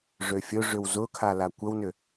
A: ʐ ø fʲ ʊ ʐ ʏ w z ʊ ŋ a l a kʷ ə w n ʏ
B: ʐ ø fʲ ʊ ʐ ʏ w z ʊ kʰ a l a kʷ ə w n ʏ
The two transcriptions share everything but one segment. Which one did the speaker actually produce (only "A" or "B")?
B